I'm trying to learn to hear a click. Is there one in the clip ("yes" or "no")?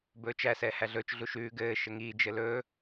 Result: no